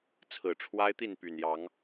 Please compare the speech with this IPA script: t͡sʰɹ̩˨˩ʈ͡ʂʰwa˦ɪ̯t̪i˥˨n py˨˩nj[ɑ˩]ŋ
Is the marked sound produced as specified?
no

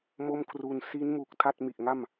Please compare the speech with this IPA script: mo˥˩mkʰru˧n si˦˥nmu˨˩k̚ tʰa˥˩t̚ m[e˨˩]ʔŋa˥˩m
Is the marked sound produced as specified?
no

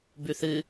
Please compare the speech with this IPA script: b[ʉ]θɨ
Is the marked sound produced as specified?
yes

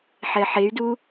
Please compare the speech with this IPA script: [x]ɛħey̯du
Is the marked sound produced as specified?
no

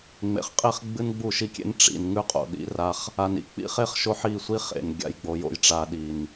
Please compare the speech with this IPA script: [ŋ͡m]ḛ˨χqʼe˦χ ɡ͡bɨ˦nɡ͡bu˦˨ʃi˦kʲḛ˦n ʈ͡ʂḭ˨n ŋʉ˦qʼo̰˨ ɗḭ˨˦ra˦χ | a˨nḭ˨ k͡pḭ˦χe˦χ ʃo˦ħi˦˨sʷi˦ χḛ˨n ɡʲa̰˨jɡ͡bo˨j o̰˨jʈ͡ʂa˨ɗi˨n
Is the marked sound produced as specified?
yes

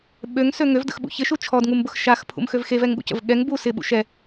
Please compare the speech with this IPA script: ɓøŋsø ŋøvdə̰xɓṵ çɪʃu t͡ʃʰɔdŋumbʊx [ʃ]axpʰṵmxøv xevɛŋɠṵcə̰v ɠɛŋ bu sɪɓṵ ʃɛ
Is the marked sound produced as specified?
yes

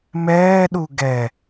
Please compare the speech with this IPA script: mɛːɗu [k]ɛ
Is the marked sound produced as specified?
no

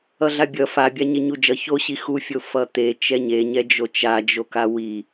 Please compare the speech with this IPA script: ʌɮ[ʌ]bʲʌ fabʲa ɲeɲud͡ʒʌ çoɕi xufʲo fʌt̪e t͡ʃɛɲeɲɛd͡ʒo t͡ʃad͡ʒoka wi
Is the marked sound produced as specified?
no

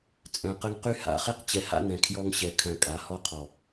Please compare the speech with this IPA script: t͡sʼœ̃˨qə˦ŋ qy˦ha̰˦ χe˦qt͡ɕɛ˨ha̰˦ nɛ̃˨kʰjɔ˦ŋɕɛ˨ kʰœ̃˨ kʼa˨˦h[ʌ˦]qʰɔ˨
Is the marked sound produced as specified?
no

